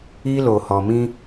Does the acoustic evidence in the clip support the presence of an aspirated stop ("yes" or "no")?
no